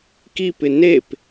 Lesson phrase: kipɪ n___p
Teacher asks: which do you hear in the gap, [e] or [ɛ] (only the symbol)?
e